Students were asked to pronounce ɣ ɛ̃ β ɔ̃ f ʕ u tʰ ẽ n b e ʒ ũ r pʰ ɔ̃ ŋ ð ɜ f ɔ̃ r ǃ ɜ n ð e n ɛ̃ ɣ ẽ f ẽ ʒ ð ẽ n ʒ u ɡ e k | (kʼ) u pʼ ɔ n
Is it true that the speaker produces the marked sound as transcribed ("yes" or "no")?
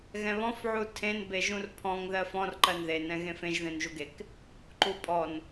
no